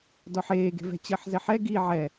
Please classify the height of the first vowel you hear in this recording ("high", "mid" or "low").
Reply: mid